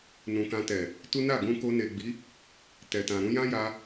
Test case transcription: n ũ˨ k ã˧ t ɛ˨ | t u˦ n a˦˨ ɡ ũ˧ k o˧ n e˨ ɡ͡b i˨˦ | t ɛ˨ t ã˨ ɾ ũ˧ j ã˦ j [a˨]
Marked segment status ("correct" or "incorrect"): incorrect